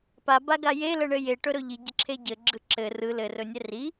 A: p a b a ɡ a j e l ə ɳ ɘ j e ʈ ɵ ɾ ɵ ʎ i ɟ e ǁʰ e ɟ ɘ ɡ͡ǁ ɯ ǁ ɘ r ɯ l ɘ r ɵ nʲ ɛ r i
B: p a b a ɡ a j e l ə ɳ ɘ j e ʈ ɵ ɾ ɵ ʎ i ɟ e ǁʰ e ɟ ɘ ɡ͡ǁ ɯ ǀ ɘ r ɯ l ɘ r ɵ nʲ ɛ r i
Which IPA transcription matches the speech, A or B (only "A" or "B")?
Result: A